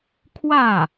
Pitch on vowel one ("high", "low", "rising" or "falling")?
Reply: falling